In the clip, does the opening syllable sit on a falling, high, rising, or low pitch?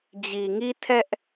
low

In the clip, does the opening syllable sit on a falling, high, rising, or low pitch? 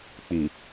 low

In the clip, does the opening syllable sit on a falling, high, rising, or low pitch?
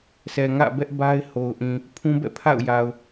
low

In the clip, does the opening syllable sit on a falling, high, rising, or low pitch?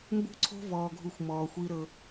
falling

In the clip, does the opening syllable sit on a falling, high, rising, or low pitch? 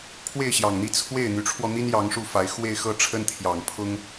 falling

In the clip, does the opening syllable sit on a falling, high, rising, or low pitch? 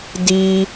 high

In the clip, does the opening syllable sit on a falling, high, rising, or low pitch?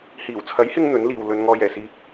low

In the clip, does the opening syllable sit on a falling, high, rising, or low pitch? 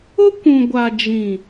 high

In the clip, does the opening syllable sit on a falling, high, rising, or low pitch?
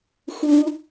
high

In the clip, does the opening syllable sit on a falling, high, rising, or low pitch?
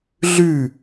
falling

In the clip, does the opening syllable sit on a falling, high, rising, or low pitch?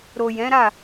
low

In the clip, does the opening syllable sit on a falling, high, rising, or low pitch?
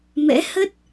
rising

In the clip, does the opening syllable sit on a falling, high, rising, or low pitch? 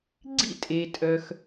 falling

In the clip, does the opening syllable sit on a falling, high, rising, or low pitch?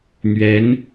rising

